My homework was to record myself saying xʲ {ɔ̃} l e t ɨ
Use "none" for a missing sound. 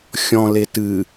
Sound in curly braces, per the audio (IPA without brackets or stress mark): ɔ̃